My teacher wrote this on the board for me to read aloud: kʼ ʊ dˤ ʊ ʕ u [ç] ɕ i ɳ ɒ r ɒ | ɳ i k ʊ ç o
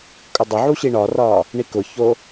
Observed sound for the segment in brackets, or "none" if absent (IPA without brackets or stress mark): none